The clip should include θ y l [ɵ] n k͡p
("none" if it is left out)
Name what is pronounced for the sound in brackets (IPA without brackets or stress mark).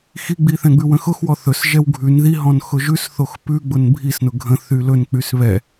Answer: ɵ